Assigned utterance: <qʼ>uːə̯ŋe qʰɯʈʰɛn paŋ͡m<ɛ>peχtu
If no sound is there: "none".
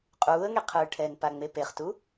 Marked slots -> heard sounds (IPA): qʼ, e

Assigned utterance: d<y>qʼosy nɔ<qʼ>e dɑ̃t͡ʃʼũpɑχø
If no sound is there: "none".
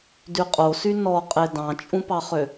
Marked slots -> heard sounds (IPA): y, qʼ

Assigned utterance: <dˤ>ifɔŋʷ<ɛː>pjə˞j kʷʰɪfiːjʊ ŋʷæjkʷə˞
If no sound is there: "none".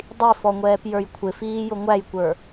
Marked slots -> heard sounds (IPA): dˤ, ɛː

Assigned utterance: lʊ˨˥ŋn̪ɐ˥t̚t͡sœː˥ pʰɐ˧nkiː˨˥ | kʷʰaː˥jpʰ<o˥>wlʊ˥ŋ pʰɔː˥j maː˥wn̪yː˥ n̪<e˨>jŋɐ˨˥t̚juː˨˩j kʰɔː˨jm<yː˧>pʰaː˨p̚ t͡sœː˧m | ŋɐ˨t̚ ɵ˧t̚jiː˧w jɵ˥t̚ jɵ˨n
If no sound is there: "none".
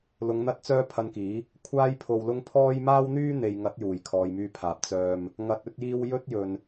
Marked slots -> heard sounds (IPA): o˧, e˨, yː˧

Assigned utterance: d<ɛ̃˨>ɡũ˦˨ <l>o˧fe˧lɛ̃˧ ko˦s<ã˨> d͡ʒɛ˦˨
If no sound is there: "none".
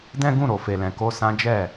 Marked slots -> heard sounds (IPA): ɛ̃˦, ɾ, ã˦

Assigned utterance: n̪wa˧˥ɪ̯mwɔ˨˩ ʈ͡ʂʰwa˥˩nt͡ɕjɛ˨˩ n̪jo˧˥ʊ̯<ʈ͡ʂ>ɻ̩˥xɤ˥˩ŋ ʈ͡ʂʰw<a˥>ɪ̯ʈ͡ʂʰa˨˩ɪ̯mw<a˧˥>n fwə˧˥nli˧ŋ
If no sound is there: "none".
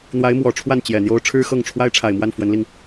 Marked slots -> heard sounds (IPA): ʈ͡ʂʰ, a˥, a˥˩

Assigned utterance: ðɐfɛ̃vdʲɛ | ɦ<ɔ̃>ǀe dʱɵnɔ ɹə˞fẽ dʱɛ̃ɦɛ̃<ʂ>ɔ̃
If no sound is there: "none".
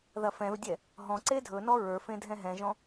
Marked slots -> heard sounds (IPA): ɔ̃, ʒ

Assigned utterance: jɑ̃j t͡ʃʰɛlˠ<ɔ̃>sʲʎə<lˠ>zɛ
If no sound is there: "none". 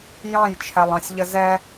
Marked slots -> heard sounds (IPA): ɑ̃, none

